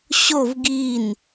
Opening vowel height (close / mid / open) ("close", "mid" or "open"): mid